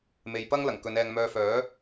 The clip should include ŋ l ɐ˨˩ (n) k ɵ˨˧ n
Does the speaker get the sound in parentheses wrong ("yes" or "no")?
yes